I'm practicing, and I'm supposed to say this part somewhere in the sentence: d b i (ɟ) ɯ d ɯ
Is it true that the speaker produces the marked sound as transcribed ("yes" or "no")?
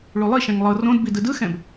no